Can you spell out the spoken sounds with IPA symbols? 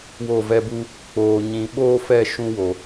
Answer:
w o˦˨ v ɛ˦ b u˦ | k͡p oː˧ ɲ ĩ˧ ɓ oː˦ f ɛ˦˨ ʃ ũ˦ w o˨

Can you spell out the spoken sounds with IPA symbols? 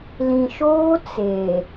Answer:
l ĩ˨ ʃ oː˦ t͡s e˨

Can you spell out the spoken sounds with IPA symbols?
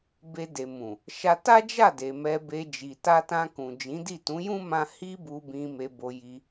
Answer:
b e˧ d e˨ m ũ˨ | ʃ a˧ t a˦ d͡ʒ a˦˨ d e˨ m ɛ˧ b e˧ d͡ʒ i˨ t a˧ t ã˧ k ũ˨ d͡ʒ ĩ˨˦ d i˦˨ t ũ˨˦ j ũ˦ m ã˧ h i˦ b u˧ b ĩ˧ m e˧ b o˧ j i˧

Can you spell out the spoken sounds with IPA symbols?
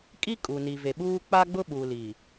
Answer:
kʼ i˦ kʼ u˨ n i˨ v e˨ ɓ uː˦ k͡p a˦ ɡ͡b ʊ˦ ɓ u˨ l i˨

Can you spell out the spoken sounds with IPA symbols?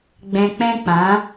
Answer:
ɡ͡b ɛ̃˨ k͡p ɛ̃˦ k͡p ã˨˦

